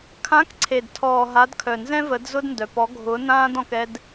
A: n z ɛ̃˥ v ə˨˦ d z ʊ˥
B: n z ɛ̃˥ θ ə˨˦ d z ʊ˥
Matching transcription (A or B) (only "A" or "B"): A